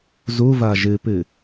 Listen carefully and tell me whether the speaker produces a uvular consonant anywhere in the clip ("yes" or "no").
no